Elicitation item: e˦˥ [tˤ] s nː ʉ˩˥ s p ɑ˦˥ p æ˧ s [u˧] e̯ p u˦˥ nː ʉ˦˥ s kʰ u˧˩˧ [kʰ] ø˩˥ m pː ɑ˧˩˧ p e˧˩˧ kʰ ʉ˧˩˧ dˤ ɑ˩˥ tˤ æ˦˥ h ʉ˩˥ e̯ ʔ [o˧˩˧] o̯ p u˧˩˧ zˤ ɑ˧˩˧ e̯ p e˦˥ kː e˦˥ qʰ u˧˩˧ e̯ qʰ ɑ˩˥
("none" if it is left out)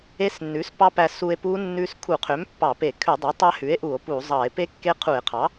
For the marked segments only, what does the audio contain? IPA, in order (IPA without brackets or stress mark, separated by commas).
none, u˧, qʰ, u˧˩˧